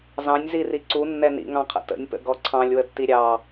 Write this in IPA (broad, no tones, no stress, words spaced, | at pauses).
zɑ̃nʲziri ǀunːɛ nḭŋɑ̃qʰə̰ tə̰nʲpə̰ɡɔ ǀʰɑ̃lʲwətːi ɾʲɑ